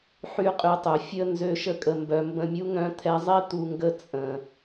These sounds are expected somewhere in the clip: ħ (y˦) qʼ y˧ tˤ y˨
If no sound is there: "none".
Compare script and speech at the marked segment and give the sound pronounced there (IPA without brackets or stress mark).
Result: y˦